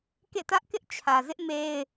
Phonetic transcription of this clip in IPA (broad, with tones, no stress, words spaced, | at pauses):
kḛ˦˨tä˦ʔ kɪ˦ʔt͡ɕʰä˨zɪ˦ʔ me˦ɪ̯